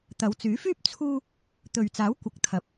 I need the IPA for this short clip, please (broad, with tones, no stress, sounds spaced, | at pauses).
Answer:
t̪ ɐ˨˧ w t͡s yː˨˥ f yː˥ p̚ t͡sʰ uː˥ | t̪ ɵ˨ ɥ t͡s aː˨˥ w kʷ ɐ˨ k̚ t̪ʰ ɐ˨ p̚